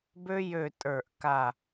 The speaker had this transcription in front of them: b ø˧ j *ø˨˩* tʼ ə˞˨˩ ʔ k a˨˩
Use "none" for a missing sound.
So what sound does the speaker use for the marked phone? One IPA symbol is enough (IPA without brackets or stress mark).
ø˨˩